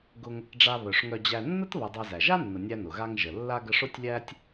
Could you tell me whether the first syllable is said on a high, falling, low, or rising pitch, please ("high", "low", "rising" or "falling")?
low